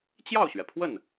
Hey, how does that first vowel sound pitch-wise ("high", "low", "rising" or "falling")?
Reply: falling